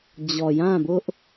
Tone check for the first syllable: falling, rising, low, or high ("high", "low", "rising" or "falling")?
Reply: low